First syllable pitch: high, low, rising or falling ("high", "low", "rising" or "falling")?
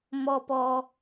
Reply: high